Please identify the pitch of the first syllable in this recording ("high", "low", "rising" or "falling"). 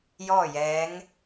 falling